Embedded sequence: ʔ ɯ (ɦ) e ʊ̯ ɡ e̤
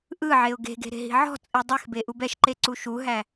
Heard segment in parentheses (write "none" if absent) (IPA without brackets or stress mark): ʕ